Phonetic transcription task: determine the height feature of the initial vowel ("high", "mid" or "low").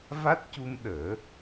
low